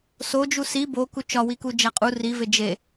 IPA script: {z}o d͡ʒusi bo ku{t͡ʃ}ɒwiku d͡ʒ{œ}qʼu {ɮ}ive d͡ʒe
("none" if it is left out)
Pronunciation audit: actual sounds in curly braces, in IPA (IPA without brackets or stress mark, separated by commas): s, t͡ʃ, æ, r